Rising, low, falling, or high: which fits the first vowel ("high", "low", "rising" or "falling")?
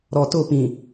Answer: low